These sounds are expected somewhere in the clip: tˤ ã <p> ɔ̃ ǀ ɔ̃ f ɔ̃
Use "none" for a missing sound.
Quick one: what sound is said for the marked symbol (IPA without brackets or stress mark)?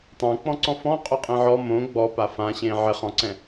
k͡p